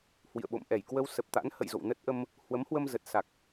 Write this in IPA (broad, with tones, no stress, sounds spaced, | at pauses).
h w ḭ˧˨ ə̯ ɓ o̰˧˨ m ʔ ɛ˧˩ j k w ə˧ w s ə˨˩ p̚ t̪ a̰˧˥ n h ə̰˧˨ j z o̰˧˨ w n ə˦˥ t̚ ʔ ə˧ m | h w ə˨˦ m h w ə˧ m z ə˨˩ t̚ s a˨˩ k̚